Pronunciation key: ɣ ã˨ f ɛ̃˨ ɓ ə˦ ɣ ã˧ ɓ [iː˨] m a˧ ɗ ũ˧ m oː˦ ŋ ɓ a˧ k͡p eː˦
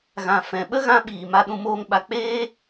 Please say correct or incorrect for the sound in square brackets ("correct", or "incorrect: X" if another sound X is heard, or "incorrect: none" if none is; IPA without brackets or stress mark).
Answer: correct